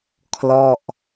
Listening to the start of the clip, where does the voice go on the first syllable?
falling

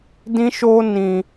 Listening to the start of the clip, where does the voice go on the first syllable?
high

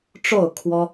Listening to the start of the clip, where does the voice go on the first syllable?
falling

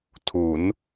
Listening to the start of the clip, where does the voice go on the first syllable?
rising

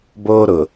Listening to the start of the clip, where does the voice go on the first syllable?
high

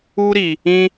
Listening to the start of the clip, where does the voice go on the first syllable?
high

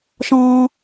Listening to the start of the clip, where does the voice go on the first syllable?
high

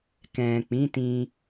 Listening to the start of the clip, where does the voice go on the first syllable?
low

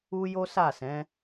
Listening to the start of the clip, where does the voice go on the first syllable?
high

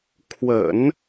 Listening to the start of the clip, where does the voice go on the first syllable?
low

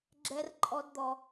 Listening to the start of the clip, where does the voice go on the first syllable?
high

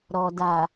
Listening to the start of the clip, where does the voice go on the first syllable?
low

